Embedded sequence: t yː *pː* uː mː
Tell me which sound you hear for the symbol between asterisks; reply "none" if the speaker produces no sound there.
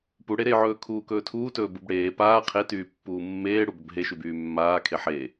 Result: pː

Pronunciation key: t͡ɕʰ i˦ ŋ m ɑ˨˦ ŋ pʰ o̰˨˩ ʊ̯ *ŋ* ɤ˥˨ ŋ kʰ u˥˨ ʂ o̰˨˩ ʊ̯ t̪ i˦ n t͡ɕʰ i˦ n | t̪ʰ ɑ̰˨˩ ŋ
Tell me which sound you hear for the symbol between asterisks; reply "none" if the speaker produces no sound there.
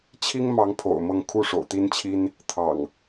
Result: m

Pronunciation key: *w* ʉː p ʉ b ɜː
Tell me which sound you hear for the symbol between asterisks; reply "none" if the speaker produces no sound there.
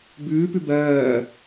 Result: b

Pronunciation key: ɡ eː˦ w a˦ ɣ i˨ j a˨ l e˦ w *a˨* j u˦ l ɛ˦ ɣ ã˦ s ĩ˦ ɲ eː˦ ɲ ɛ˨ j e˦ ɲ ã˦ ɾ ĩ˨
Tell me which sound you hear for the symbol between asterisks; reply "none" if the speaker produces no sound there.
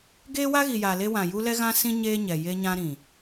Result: ã˨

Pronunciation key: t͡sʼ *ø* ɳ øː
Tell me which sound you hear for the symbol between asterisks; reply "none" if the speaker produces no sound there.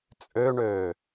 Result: ø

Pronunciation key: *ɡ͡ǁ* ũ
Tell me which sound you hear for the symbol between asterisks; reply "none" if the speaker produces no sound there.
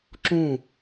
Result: ǁ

